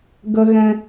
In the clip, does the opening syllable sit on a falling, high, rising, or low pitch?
high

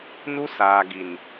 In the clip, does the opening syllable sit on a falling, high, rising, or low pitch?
high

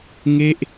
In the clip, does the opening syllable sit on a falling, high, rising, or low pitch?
falling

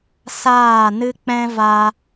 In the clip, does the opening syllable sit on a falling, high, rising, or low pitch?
falling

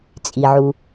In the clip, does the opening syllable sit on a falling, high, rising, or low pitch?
low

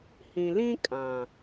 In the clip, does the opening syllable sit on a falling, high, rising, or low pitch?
low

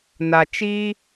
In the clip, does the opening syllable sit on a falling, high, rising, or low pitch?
low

